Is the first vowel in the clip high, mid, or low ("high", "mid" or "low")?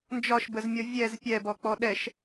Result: low